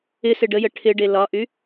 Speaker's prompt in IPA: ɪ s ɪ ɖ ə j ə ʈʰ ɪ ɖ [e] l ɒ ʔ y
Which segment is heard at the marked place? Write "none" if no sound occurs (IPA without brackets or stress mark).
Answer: e